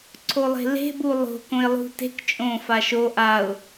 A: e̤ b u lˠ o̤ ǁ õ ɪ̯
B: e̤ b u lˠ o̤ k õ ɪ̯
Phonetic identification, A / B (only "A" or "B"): B